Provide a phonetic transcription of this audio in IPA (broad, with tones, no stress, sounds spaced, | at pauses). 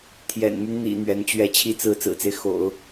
t̪ʰ j ɛ̰˨˩ n m y˦ n n̪ ḭ˨˩ n̪ ɥ ɛ˧˥ n t͡ɕ ɥ ɛ˥˧ t͡ɕʰ i˥˧ t͡s ɹ̩˥˩ t͡s ɹ̩˨˩ t͡s e˦ ɪ̯ x o̰˨˩˦ ʊ̯